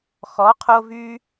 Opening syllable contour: rising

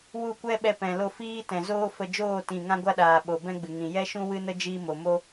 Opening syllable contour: falling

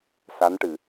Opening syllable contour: rising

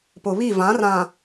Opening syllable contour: low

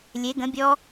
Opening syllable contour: rising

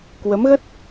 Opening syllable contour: rising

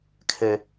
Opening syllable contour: high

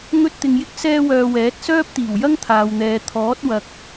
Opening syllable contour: high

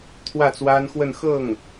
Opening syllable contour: falling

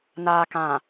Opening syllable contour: low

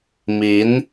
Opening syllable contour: rising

